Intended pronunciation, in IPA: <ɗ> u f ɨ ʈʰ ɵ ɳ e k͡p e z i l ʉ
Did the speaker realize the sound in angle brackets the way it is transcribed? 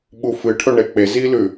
no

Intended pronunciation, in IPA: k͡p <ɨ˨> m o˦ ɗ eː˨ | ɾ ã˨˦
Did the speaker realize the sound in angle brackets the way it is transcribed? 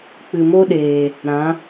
yes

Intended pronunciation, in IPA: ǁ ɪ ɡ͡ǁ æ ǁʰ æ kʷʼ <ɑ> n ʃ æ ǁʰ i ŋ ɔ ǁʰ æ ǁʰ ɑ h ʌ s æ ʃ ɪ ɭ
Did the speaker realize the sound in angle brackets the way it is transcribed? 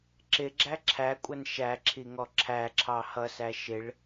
no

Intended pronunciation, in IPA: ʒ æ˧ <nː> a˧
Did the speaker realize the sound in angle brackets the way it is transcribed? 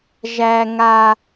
no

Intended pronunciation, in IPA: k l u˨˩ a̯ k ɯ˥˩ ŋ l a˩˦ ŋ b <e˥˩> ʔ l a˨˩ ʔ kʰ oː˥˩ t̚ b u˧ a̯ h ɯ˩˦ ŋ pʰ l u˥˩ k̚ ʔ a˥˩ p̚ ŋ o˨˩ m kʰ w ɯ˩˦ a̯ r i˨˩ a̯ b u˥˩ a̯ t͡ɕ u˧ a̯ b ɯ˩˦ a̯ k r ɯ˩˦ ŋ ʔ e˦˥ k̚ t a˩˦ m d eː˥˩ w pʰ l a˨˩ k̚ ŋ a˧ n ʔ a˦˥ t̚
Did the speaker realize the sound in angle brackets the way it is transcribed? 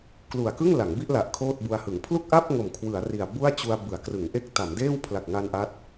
no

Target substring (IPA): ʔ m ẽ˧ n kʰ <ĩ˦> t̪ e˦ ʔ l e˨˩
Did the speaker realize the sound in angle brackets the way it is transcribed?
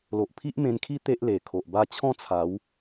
no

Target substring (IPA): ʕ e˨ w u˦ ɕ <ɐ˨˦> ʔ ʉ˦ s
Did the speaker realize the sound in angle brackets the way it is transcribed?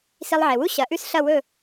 yes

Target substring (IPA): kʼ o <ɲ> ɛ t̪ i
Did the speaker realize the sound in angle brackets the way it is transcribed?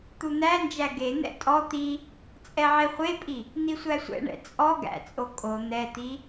no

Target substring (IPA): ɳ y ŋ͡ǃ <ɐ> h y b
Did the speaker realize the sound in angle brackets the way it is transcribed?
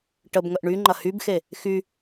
yes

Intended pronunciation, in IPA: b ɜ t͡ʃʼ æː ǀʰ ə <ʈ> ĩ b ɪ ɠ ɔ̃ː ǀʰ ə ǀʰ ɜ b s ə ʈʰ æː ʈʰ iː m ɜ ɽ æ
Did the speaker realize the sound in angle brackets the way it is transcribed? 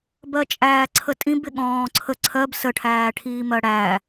no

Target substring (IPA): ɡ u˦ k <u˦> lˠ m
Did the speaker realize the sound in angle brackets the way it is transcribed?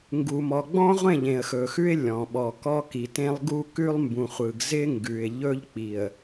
no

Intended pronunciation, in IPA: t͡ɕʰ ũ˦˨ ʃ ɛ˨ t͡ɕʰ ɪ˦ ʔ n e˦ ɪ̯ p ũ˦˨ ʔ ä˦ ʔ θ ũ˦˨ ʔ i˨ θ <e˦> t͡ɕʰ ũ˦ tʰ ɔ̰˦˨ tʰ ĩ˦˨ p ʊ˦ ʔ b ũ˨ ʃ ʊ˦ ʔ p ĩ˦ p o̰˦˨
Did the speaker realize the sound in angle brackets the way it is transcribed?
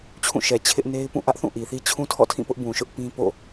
no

